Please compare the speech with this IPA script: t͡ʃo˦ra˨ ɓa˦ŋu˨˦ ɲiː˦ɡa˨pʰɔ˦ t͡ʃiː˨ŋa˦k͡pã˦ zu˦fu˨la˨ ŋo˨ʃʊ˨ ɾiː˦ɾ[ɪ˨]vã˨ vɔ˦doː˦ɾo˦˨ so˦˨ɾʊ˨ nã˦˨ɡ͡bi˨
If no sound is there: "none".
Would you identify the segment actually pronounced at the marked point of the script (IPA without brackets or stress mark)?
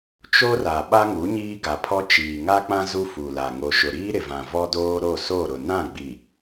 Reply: ɪ˨